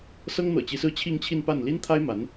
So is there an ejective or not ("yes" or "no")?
no